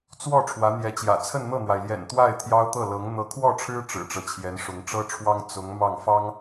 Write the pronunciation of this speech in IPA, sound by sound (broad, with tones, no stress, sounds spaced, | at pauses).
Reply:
t͡s w ɔ˥˩ ʈ͡ʂʰ w ä˧˥ n̪ j ɛ˧˥ t͡ɕ j ä̰˨˩ t͡sʰ ə˥˧ n n̪ ɤ˥˩ n̪ w a˩ ɪ̯ l j ɛ̰˨˩ n t̪ w a˥˩ ɪ̯ t̪ʰ j ɑ˥ ʊ̯ t̪ ɤ˥˩ l ɤ˧˥ ŋ n̪ ɤ˧˥ kʰ w ɔ˥˩ ʈ͡ʂʰ ɻ̩˥ ʈ͡ʂ ɻ̩˨˩ ʈ͡ʂ ɤ˦ t͡ɕʰ j ɛ˧˥ n ʂ ʊ˧˥ ŋ ʈ͡ʂ ɤ˥ ʈ͡ʂʰ w ɑ˥ ŋ t͡s ʊ˧˥ ŋ m ɑ˥˩ ŋ f ɑ˥ ŋ